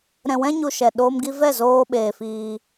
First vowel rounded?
no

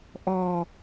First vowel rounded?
yes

